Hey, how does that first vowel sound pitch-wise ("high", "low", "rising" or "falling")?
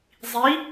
rising